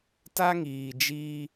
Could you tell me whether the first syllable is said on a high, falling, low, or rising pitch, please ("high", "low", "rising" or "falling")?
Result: high